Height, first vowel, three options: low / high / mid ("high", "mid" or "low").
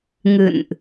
high